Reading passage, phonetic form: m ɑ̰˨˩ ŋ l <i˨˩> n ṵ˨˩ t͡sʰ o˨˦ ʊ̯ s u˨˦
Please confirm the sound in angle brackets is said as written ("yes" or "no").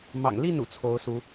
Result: no